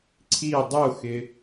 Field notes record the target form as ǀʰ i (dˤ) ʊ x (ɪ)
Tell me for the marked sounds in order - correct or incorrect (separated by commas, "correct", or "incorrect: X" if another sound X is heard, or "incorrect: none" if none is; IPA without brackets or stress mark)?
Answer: correct, correct